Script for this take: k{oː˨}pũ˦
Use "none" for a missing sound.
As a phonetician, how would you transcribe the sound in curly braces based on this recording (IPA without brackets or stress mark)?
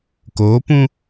oː˨˦